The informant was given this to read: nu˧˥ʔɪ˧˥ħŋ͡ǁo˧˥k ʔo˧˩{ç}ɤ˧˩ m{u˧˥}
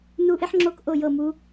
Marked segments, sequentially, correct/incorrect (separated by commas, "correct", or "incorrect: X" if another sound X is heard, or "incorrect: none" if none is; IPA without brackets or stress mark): incorrect: j, correct